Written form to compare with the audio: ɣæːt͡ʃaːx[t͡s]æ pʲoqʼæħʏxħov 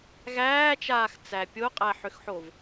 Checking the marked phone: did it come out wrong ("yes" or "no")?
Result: no